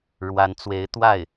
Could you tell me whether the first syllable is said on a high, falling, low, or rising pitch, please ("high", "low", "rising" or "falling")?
rising